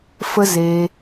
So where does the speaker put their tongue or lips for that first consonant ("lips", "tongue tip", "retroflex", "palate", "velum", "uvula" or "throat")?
lips